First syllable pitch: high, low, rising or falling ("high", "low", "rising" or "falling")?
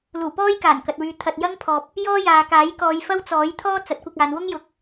low